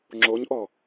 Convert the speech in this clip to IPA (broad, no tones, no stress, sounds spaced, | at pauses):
ŋ͡ǁ o ɲ ʔ ɔ